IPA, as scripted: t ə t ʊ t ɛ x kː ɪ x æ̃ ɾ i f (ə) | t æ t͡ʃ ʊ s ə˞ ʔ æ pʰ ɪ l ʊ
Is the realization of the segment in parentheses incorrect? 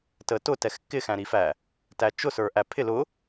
yes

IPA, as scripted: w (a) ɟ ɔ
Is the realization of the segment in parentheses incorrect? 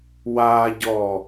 no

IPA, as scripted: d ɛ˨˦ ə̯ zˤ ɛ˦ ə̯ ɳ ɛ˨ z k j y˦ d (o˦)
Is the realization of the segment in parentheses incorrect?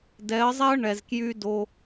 no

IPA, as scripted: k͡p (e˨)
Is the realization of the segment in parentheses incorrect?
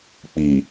yes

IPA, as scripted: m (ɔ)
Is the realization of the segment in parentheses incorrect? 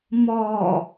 no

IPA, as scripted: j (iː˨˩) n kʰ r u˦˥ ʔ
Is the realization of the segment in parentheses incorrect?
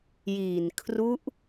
no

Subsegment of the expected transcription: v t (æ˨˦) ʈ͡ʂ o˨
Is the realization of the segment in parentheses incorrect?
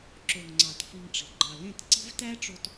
yes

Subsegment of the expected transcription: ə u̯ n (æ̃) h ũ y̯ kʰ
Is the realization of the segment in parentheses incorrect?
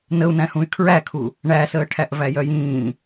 no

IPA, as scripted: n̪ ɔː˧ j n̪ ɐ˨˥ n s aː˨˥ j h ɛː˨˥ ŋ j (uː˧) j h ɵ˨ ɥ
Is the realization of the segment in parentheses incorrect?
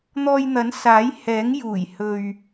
yes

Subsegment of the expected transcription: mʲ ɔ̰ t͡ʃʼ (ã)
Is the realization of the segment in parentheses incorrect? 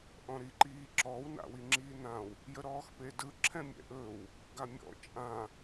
no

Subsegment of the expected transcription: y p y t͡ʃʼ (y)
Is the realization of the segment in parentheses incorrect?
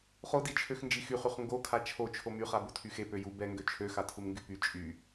no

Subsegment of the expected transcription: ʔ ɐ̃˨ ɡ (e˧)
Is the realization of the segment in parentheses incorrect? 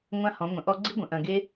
yes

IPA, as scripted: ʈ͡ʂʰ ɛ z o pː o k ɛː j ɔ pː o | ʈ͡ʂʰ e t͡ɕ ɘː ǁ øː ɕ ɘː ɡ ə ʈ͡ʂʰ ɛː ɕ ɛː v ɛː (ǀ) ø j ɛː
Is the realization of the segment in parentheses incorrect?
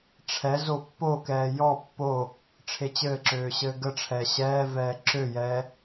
yes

